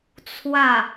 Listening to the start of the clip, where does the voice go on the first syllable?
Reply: falling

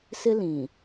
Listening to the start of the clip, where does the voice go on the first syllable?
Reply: high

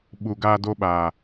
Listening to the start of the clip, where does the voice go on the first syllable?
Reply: low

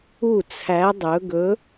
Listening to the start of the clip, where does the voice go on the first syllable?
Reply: falling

